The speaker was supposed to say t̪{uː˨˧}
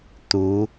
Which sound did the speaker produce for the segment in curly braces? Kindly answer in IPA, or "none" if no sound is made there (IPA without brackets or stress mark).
uː˨˧